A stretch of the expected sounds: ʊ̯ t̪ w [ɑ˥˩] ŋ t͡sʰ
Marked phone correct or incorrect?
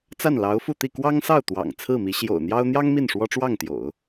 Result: incorrect